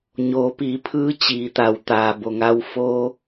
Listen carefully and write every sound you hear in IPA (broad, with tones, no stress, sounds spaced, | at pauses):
ɲ oː˩˧ p iː˩˧ pʰ ɯː˧˥ t͡ɕ iː˩˧ t̪ a˩ w t̪ aː˩ b o˩ ŋ a˧ w f oː˧